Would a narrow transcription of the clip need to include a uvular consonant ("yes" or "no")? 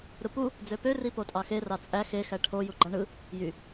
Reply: no